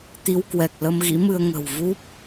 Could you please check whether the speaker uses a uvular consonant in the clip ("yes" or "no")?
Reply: no